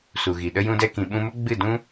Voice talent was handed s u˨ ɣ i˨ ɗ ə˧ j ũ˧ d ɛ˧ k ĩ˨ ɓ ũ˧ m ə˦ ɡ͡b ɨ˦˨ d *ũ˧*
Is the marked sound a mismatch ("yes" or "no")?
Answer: yes